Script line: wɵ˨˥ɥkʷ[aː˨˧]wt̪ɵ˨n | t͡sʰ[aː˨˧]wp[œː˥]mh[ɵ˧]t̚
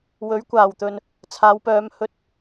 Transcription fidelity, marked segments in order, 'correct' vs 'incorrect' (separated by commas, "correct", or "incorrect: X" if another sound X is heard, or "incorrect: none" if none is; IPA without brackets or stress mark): incorrect: aː˨˩, correct, incorrect: œː˨˧, correct